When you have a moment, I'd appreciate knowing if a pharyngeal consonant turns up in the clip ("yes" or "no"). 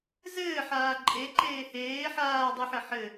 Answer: yes